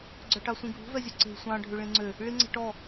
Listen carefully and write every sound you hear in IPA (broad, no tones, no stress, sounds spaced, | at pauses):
ɡ͡ǀ œ ʈ ɑ sʷ ĩ ɡʱ ṳ v ɛ zʲ u ǀ e̤ sʷ ɑ̃ ɖʱ ʉ ɭ ĩ ŋ͡ǀ ø | ɭ i ŋ͡ǀ ɛ̤ ʈ ɔ